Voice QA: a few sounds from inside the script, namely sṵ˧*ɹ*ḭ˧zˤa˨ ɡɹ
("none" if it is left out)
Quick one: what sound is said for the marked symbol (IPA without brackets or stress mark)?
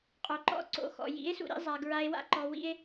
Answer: ɾ